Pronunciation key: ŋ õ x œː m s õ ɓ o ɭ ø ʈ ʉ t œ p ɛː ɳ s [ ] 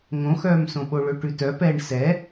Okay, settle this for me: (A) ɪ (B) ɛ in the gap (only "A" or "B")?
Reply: B